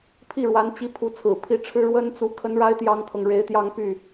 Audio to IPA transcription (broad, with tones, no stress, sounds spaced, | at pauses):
pʰ i˥˩ ɻ w a˧˥ n t͡ɕ i˧˥ pʰ u˧˥ t͡sʰ ɹ̩˨˩ pʰ i˧˥ ʈ͡ʂʰ ɻ̩˥ ɻ w ə˥ n t͡s u˧˥ kʰ ə˧˥ n ɻ a˧˥ ɪ̯ t̪ j ɑ˥ ŋ kʰ ɤ˨ ŋ ɻ e˧˥ ɪ̯ t̪ j ɑ˥˧ ŋ p y˥˩